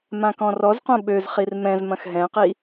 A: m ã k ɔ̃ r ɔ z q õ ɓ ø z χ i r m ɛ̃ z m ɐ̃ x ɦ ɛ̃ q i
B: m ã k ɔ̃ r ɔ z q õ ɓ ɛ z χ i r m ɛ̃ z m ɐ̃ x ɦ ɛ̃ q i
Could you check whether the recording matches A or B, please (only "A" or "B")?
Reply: A